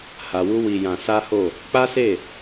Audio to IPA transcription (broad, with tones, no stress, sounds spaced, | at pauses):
h a˧ w u˦ w i˧ j ã˧ s a˦ h o˦˨ | k͡p a˦ s e˦˨